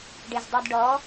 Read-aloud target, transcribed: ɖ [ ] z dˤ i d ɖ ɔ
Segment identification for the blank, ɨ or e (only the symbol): e